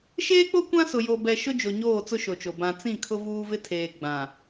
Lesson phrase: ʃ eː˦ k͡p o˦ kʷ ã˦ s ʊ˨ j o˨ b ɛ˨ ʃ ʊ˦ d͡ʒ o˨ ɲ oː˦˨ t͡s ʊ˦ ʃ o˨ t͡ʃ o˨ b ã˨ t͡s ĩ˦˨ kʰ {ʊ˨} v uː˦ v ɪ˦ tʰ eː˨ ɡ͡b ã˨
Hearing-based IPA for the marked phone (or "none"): ʊ˦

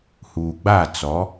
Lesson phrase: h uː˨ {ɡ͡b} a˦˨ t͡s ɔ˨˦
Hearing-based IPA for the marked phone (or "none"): ɡ͡b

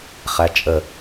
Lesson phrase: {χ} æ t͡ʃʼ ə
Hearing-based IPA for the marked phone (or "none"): χ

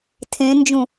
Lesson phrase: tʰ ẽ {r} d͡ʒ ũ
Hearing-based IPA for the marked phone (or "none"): n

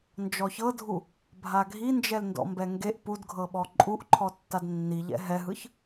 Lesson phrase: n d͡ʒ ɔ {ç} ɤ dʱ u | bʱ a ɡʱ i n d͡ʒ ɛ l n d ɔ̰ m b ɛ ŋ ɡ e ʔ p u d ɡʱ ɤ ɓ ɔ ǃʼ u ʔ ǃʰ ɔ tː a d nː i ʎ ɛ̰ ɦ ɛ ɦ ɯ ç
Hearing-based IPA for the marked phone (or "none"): ç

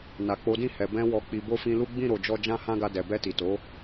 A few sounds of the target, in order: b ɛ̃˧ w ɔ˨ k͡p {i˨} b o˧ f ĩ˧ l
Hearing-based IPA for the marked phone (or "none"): i˨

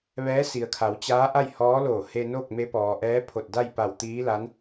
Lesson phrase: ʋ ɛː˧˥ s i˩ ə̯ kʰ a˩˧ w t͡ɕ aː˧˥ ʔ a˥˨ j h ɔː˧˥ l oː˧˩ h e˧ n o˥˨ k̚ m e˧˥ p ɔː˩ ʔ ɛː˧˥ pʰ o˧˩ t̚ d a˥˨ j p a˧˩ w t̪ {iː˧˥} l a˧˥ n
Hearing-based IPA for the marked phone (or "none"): iː˧˥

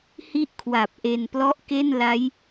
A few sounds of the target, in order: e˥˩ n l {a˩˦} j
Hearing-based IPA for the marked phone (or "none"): a˦˥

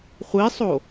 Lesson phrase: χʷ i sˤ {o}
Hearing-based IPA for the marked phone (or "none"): o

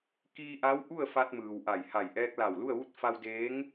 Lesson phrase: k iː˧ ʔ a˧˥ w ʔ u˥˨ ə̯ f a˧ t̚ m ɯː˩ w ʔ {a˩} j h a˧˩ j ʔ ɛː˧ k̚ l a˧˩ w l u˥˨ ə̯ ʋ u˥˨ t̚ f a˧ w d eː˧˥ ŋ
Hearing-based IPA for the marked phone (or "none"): a˧˩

